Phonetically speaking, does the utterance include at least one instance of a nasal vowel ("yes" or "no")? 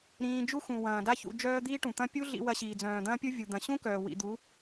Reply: yes